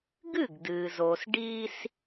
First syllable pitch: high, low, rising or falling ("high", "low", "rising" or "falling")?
falling